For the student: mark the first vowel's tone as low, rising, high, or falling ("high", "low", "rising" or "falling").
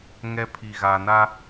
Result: high